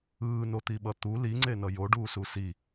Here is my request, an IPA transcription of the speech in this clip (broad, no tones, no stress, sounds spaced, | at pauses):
ɯː n o t̪ i ɓ ʌ t̪ u l i ŋ͡ǀ e n ʌ j o ɖ uː s u s i